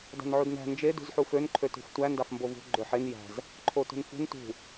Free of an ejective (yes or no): yes